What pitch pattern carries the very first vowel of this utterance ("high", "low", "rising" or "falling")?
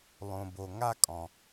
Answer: low